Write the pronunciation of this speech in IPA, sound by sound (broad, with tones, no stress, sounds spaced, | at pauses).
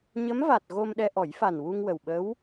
ɲ ə˧˥ m v a˨˩ t̚ ɣ o˧ m ɗ ɛ˧ ʔ ɔ˨˩˦ j f a˨˩ n w u˧ ŋ w ə˨˩ w ɓ ə˧˥ w